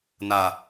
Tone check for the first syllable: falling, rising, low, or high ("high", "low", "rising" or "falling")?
low